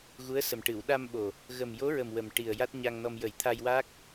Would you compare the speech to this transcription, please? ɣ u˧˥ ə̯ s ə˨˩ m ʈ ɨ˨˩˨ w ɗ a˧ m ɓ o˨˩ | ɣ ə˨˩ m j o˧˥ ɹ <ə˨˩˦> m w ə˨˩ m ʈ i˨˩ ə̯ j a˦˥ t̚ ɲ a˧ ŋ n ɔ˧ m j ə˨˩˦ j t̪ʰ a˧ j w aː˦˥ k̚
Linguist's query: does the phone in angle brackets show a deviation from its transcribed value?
yes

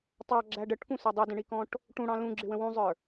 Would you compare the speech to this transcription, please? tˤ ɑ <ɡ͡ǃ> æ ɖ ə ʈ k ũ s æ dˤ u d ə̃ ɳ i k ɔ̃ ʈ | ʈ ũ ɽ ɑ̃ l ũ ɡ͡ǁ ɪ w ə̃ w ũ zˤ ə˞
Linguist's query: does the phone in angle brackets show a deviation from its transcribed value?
yes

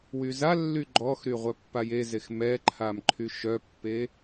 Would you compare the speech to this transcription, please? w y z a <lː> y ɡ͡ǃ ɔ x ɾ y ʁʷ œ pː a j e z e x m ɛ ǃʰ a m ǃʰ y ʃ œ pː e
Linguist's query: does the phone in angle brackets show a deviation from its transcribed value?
no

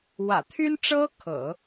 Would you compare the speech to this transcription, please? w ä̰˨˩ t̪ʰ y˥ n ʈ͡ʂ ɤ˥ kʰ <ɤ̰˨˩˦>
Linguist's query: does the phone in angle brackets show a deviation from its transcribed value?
no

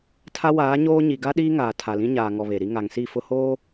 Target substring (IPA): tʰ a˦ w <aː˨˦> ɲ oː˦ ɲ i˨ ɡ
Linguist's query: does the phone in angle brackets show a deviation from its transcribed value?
no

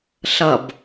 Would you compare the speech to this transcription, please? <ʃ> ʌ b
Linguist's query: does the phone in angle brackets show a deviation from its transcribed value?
yes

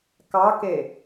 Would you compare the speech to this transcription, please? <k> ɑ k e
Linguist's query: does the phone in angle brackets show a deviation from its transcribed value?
no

